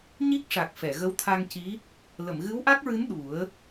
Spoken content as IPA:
ɲ i˦˥ k̚ ʂ a˨˩ k̚ f ɛ˨˩˨ ɣ ə˧˥ w t̪ʰ a˧ ŋ c i˧˥ | l ə˨˩˨ m ɣ ɨ˧˥ w ʔ a˦˥ k̚ ɹ ɨ˧˥ n ɗ u˨˩˦ ə̯

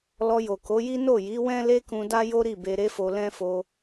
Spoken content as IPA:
l ɔ˧ j o˨ k o˨˦ j i˦ n o˦˨ j i˨˦ w ɛ̃˦ l e˦ k ũ˧ d a˦ j o˦ ɾ i˦˨ b e˧ ɾ e˦ f o˧ l ɛ̃˦ f o˧

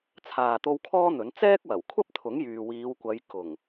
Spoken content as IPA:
t͡sʰ aː˨ t̪ o˧ w kʰ ɔː˥ n̪ ɵ˨˥ n t͡s ɛː˥ k̚ w ɐ˨˩ w kʷʰ ɐ˥ p̚ t̪ʰ ʊ˨˥ ŋ j yː˨ w iː˨˧ w kʷ ɐ˨˧ j k ʊ˨˩ ŋ

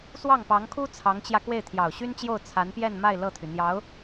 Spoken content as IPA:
s w ɑ˥˩ ŋ p ɑ˧˥ ŋ kʰ u˥ t͡sʰ ɑ˧˥ ŋ t͡ɕ j ä˧ k w e˥˩ ɪ̯ t̪ʰ j ɑ˨˩ ʊ̯ ɕ y˥ n t͡ɕ j o˥˩ ʊ̯ t͡sʰ a˧˥ n p j ɛ˥˧ n m a˥˧ ɪ̯ l ɤ˥˩ t̪ʰ y˩ n̪ j ɑ˧˥ ʊ̯

